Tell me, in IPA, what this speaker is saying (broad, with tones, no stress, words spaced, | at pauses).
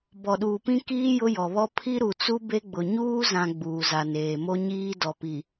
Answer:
bɔ˨ɗuː˨pĩ˦ kiː˦ jʊ˦jɔ˨ βɔ˦ pʰi˦ ɾu˨t͡su˦ be˦ɡ͡bʊ˨ ɲuː˦zã˨ ɡ͡buː˨za˨neː˨mo˦ ɲiː˦ dɔ˨pi˨